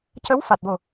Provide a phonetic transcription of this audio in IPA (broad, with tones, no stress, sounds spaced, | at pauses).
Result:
c ə˧˥ w f a˨˩ t̚ w o˨˩